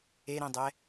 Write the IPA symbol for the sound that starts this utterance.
e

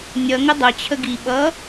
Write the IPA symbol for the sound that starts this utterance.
nʲ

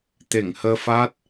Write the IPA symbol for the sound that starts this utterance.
t̪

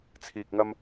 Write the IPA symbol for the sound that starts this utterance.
t͡sʰ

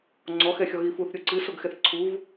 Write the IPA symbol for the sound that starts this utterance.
ŋ͡ǀ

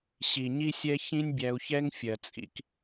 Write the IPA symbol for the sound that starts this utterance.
ɕ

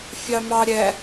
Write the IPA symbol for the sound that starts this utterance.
fʲ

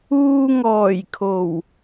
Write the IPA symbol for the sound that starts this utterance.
uː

